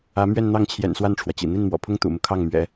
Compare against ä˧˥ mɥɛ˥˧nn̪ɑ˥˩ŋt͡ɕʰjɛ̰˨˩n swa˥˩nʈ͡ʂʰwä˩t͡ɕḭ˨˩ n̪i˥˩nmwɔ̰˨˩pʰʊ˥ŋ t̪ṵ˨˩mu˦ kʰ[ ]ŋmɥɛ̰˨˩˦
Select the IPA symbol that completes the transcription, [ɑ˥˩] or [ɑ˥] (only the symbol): ɑ˥˩